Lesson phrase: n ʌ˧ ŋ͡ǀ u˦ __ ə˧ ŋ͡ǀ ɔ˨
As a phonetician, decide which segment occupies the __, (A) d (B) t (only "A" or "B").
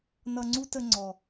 B